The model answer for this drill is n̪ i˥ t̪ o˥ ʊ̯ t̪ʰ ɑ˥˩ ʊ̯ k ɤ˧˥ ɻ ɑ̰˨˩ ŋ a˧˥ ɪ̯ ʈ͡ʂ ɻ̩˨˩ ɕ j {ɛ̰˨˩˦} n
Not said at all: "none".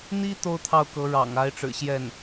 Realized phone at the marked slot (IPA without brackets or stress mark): ɛ˥˩